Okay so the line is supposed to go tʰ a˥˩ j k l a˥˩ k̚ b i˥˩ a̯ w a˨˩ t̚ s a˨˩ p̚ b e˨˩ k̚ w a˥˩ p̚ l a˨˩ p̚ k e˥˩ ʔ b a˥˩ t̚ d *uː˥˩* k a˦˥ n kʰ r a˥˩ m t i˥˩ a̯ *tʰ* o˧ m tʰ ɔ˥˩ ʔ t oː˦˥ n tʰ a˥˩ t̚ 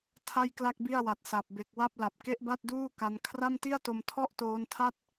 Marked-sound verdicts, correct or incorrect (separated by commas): correct, incorrect